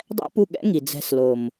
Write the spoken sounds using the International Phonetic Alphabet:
dˤɛ̰˦pu˦˨ ɠɛ̰˦ ŋi˨ d͡zɛ̤˧s lo˨m

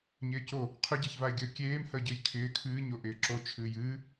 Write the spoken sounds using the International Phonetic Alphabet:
ɲɪːco | qʰʏɟeçvaɪ̯ɡʲəː kʲeːmhəː ɟɨjkʰɪː kʰɨːɲo ʔɪːǁo t͡ʃʰɨːjɨː

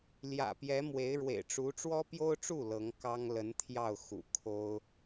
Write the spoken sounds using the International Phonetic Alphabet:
ljä̰˨˩pjɛ˧˥ mwe˧˥ɪ̯ɻwḛ˨˩ɪ̯ʈ͡ʂu˧˥ ʈ͡ʂwɔ˥pjo˥ʊ̯ʈ͡ʂu˥˩ lɤ˧˥ŋ kɑ˥ŋ lə˧˥nt̪ʰjɑ˥˩ʊ̯ xṵ˨˩kʰo˥ʊ̯

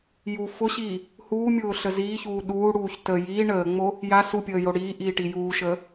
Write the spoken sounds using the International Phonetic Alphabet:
ju fʊɕiː | huːmʲʊːɬə ziːçuː ɗuːɽuːç tə jiː ɳəːŋ͡mo | ja supʲəːjo ɽiːʔiːʈi juːʃəː

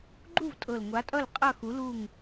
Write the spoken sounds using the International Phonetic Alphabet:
ɡ͡ǃu˥˨vtʼɤ˨˩l ŋʷa˨˥tʼʌ˥˨l qʼʌ˥˨xu˨˥lu˥˨ŋ

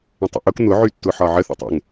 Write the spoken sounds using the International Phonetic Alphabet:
ə̃tˤə̰ʔʊk n̪ʊ ʕytːʊħɒʕə θə̰tˤə̰ŋ

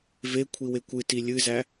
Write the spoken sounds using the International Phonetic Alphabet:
ve kʷʰiwekʷɨti lʲɨzæ

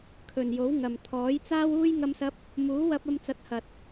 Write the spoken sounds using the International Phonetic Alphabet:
kʰɵ˨njo˨˥w ŋɐ˨m t̪ʰɔː˨˥jt͡saː˥wuː˥j ŋɐ˥msɐ˥p̚ | muː˨˥wɐ˧p̚ ɐ˧mt͡sɐ˨˥t̚hɐ˨t̚

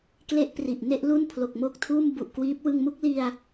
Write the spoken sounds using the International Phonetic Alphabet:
kle˦˥ʔ pri˨˩ʔne˥˩ʔlu˥˩n pʰlo˨˩k̚mo˦˥k̚tʰuː˥˩m bu˨˩ʔkwiː˦˥p̚ wɯ˧ŋmu˦˥k̚li˧a̯

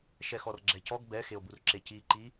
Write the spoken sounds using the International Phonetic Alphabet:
ʃɛxɔrɡ͡ǁɛcɔɡ bɛ xeo̯burǁeci ǃi

